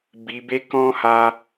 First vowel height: high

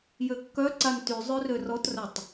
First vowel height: mid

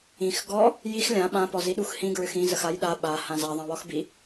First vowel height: high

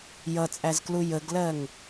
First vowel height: mid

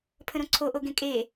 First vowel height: mid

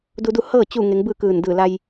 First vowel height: high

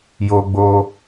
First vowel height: mid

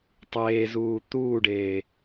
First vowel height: mid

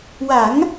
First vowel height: low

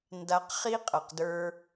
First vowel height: low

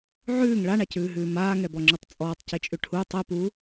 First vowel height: high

